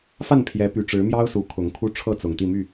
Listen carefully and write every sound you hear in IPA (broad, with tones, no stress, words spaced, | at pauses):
fa˥˨npʰjɛ˨˦py˨˩ʈ͡ʂɻ̩˨˦ mjɑ˦ʊ̯su˨˦ kʰʊ˨˦ŋkʰu˦ ʈ͡ʂʰɤ˥˨t͡sʊ˨˩ŋt̪i˥˨ my˥˨